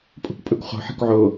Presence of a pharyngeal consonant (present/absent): present